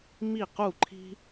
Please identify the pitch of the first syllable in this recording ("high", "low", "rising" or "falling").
falling